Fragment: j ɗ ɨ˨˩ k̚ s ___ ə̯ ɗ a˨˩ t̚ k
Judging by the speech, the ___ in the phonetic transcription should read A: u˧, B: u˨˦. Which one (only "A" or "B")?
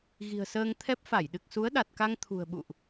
B